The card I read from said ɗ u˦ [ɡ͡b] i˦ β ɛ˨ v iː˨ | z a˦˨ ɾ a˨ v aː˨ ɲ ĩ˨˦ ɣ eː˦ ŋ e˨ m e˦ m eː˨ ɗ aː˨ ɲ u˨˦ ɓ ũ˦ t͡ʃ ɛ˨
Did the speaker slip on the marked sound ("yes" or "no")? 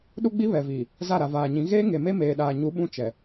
no